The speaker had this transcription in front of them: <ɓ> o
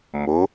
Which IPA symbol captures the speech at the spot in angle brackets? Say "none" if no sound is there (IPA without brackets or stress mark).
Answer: m